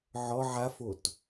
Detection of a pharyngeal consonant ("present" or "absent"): present